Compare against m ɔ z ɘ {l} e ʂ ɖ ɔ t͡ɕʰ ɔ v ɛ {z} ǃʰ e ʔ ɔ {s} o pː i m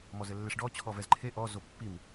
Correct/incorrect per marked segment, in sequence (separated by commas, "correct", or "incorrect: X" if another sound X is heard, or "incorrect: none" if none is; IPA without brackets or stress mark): incorrect: lː, correct, incorrect: z